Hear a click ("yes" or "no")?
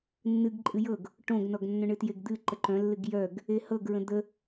yes